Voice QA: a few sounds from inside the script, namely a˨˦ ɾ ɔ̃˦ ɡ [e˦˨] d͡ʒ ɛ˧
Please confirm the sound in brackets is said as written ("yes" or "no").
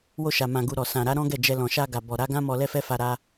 no